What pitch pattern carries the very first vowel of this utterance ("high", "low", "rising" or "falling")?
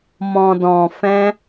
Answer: low